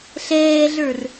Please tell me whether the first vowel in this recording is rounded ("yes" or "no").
no